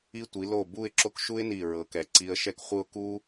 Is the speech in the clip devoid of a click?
no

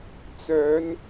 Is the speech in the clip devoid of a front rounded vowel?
no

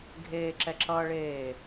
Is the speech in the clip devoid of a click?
no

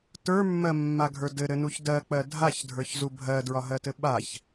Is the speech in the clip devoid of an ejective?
yes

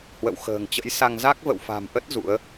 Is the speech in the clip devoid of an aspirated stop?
yes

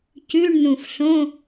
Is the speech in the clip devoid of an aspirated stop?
yes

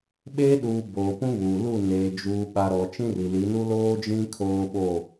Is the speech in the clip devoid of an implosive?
no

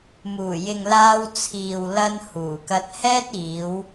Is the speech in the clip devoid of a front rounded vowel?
yes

